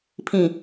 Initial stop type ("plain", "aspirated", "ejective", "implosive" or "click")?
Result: aspirated